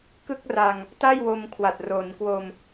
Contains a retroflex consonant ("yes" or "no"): no